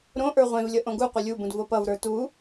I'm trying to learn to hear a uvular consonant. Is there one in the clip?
yes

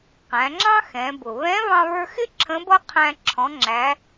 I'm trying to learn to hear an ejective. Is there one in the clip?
no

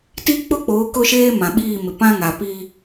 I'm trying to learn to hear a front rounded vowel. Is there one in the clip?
no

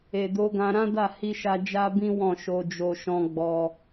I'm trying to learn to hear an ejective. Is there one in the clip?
no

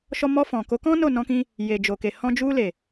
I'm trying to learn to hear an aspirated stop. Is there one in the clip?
no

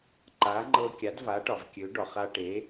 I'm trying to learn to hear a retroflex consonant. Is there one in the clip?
yes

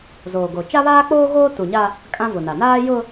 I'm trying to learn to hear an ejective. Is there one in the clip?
yes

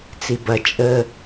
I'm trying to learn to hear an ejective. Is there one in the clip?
yes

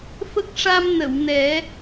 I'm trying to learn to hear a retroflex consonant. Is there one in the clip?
yes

